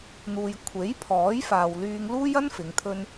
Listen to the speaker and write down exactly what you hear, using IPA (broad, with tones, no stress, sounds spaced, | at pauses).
n̪ uː˨ j kʷʰ e˨˥ j pʰ ɔː˨˥ j f aː˨ w l yː˧ ŋ l uː˥ j ɐ˥ n f ɪ˨˧ ŋ t̪ʰ ɵ˥ n